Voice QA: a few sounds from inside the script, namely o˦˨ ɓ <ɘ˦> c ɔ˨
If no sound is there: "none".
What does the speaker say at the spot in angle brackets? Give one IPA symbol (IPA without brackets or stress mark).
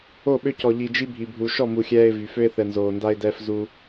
ø˦